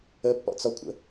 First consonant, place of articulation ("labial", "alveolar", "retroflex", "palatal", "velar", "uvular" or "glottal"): labial